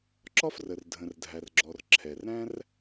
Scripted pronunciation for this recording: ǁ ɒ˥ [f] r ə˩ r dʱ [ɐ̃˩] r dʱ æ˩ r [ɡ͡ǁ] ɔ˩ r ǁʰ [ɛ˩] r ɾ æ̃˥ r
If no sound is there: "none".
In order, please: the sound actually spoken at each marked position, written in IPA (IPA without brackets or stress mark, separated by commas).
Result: f, ə̃˩, ɡ͡ǁ, ɛ˩